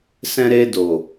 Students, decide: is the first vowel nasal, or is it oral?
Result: nasal